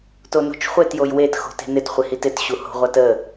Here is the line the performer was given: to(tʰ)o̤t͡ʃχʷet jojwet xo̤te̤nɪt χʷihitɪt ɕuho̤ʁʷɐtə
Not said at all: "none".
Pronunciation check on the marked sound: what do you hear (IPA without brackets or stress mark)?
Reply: n